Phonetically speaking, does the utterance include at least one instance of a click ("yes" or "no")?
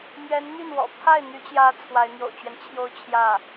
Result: no